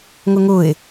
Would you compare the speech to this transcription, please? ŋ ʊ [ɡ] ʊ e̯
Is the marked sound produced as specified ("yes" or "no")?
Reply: no